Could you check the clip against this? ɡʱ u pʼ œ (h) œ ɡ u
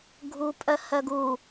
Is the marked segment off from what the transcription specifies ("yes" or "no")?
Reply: no